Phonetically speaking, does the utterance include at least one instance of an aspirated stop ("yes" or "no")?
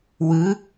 no